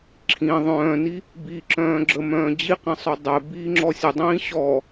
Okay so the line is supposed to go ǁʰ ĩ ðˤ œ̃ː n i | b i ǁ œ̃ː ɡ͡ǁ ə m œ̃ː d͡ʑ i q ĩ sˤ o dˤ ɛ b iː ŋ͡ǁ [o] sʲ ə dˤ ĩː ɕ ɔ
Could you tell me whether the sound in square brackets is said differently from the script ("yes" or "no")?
yes